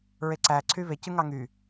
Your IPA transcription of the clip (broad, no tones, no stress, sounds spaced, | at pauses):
ɹ e ǀ æ ǀʰ y β e c ɯ ŋ ɑ ŋ y